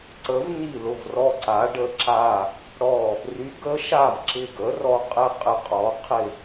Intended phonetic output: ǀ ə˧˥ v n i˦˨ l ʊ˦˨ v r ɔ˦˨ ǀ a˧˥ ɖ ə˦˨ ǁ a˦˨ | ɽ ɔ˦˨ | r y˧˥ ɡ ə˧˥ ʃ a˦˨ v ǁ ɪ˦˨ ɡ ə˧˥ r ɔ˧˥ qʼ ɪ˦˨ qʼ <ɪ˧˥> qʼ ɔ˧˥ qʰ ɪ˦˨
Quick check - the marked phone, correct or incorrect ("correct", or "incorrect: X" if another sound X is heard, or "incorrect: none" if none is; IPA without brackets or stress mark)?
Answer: incorrect: ɪ˦˨